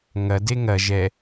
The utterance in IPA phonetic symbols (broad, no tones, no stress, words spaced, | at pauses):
ŋɐ deŋɐ ʒɛ